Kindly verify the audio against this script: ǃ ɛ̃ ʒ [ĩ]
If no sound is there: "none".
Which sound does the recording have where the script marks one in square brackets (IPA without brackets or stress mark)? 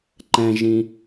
ĩ